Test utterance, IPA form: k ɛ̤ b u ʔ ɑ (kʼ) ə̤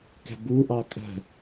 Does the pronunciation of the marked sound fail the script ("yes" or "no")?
no